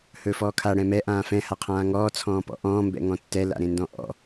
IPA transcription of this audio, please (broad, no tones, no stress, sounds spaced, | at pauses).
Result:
h ɵː f ɔː kʰ a ɽ ɛ̃ m ɛ ʔ ãː f ɛ̃ h a qʰ ãː ŋ ɔː t͡sʰ ɔ̃ː p ɔ̰ ʔ ɔ̃ː m b ɛ̰ ŋ ɔ̃ tː ɛ l a̰ ɾ ẽ n d ɔ̃ ʔ ɔ̰